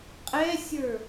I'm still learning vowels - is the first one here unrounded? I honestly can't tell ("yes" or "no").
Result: yes